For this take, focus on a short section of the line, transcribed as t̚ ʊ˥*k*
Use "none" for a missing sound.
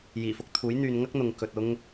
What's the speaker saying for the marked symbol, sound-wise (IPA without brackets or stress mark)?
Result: ŋ